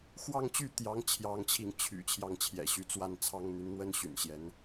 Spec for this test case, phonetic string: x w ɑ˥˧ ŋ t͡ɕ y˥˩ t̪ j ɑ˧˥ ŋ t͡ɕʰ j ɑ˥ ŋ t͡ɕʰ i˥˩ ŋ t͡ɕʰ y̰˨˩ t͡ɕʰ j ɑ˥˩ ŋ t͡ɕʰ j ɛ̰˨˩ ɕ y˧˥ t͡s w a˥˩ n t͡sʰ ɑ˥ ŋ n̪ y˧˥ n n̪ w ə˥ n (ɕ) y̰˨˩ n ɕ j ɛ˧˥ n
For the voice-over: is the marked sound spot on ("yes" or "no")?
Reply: yes